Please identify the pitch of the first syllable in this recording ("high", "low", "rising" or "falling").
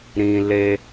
low